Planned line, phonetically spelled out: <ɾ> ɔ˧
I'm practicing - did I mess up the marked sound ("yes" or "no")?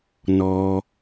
yes